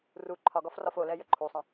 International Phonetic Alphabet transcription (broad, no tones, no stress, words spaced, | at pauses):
ru ǃʰɒɡɒf rɒfolɛ jəǃʰusˤɐ̃